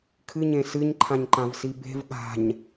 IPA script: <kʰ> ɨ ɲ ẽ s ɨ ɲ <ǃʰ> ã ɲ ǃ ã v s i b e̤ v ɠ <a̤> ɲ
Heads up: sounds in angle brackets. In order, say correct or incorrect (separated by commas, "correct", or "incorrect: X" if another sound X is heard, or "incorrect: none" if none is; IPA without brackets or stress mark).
correct, correct, correct